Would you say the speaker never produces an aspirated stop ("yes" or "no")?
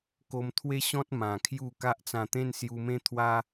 no